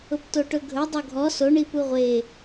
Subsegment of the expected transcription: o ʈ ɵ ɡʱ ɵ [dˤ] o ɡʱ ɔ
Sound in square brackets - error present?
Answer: no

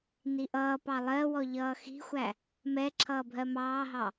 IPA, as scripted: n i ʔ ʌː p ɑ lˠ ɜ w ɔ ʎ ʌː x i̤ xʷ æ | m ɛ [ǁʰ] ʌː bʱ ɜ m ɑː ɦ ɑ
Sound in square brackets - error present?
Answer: no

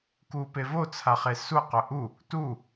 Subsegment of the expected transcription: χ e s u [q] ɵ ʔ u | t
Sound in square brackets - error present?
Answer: no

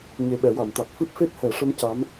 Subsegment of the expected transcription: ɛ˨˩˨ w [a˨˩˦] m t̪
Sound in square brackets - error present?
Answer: yes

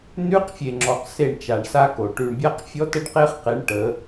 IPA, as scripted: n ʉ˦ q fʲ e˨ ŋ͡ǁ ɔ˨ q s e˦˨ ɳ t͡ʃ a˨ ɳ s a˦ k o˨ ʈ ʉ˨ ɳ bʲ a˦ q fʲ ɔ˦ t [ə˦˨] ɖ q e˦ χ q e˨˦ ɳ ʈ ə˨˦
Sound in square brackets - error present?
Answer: yes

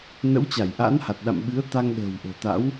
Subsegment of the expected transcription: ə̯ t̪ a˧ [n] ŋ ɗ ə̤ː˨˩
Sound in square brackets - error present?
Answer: yes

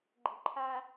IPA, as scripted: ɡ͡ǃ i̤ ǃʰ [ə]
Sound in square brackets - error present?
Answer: yes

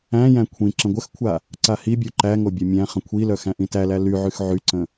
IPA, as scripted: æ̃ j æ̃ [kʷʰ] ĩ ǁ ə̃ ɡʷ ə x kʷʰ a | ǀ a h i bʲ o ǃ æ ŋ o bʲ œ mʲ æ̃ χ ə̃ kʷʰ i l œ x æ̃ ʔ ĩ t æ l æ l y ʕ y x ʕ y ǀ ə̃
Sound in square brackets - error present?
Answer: no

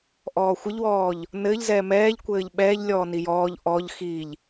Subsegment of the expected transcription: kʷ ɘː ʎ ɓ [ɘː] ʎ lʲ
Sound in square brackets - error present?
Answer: yes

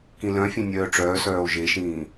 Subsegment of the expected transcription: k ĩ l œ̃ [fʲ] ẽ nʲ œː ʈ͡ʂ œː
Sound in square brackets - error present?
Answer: no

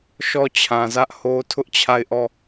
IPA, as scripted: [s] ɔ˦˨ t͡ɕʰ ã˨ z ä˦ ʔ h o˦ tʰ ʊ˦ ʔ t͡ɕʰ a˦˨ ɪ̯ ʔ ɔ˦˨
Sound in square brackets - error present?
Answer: yes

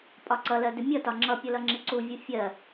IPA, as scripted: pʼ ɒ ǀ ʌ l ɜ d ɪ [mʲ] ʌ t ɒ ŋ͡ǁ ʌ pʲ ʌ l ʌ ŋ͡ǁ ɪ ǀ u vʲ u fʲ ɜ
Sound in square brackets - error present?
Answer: no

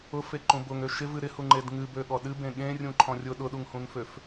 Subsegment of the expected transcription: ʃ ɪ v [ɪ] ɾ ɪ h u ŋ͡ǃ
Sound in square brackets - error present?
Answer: yes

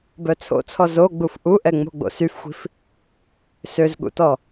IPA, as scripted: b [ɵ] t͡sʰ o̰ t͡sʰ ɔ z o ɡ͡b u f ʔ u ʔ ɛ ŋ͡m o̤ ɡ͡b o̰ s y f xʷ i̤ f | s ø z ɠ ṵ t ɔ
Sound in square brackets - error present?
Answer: yes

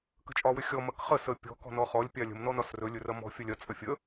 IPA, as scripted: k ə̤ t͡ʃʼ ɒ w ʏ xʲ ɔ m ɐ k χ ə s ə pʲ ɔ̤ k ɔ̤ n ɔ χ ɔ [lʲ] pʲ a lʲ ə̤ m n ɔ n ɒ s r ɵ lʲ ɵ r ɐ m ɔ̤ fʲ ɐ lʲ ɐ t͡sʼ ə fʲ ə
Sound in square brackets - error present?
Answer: no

